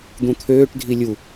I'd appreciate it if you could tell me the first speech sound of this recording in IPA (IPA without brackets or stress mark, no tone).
d̪